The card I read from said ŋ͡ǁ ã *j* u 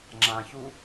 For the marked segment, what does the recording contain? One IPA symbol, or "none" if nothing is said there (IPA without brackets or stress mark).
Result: ç